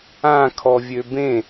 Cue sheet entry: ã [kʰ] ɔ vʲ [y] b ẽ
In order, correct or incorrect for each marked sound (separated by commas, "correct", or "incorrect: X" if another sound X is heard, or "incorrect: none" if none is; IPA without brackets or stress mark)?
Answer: correct, incorrect: ø